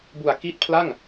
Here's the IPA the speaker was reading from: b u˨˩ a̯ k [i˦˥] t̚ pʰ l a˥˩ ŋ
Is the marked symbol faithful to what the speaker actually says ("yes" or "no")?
yes